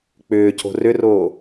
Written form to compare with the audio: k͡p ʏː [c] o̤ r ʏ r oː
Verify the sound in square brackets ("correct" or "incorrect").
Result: correct